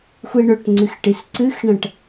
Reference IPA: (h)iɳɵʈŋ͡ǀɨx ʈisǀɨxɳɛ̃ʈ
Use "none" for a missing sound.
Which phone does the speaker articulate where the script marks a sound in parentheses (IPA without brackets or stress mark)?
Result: xʷ